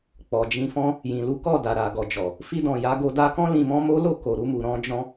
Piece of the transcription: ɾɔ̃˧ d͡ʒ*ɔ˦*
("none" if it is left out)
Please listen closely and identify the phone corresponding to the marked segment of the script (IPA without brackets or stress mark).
ɔ̃˦